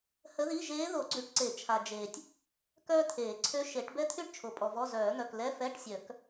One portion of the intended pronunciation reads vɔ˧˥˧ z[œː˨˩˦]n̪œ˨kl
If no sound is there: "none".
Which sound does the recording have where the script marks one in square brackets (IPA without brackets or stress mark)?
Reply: œː˨˩˦